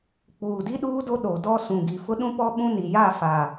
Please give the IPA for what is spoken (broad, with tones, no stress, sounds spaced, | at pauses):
k͡p uː˨ d i˦ ɗ uː˦ d o˦ ɗ o˨ d ɔ˦ s ũ˨ ɡ i˨ f ʊ˦ ɗ ũ˦ p ɔ˦ ɓ ũ˦ n i˨ j a˦˨ f a˨